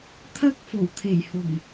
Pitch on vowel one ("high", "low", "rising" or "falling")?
high